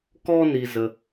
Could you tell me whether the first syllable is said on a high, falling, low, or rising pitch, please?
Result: high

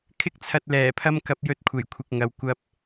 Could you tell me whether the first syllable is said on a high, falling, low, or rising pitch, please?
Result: high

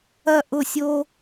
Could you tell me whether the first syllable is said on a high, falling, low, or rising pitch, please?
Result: falling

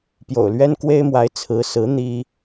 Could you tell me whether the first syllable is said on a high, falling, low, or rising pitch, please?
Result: low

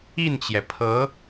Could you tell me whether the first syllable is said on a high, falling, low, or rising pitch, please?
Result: falling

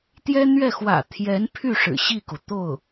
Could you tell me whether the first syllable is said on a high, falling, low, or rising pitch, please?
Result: high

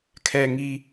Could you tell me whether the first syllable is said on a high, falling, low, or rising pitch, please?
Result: low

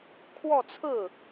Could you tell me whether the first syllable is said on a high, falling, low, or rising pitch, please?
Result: falling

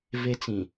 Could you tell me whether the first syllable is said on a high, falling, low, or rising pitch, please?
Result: high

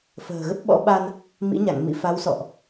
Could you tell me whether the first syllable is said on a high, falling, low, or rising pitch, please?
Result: low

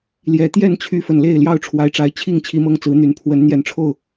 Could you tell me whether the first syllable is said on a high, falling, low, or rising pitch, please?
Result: low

